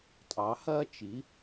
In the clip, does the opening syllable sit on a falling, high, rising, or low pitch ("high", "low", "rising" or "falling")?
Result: rising